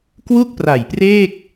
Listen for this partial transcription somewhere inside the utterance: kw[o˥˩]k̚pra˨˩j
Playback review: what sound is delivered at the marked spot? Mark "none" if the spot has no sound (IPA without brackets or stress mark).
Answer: u˥˩